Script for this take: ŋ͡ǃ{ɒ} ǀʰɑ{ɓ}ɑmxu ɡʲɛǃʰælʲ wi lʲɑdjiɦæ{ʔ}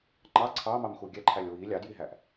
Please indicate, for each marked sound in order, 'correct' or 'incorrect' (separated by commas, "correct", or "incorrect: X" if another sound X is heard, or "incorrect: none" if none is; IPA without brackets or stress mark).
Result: incorrect: ɑ, incorrect: m, correct